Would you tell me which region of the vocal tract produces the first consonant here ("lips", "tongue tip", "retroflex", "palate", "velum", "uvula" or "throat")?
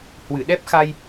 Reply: throat